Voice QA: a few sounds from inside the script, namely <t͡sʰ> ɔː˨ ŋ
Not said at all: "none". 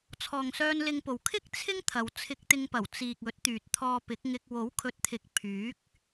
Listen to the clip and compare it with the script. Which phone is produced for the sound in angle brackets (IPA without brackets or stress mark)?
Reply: t͡sʰ